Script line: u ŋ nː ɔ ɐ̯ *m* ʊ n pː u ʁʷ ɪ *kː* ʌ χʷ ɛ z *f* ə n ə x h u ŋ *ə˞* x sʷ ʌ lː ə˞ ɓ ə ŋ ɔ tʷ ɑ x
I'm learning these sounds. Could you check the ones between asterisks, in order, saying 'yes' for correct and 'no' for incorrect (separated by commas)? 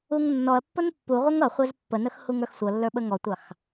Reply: no, no, no, yes